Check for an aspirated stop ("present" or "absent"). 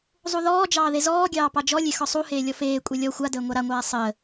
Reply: absent